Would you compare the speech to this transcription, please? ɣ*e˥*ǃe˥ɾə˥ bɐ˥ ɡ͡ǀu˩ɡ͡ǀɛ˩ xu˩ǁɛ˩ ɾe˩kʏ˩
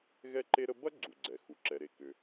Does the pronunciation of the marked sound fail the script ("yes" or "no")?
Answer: yes